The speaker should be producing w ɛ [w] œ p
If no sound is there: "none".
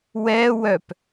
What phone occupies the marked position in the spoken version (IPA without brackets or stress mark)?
w